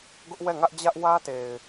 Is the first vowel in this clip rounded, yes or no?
yes